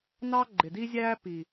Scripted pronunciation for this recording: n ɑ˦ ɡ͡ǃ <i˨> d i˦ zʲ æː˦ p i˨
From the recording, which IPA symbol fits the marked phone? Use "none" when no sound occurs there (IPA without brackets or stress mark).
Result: ɪ˨